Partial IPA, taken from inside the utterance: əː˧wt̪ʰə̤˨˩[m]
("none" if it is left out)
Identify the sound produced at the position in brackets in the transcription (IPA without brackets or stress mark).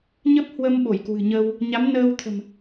m